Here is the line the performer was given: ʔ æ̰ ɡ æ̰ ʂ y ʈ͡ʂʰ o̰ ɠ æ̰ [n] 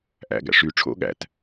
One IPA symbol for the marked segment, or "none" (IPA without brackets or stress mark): t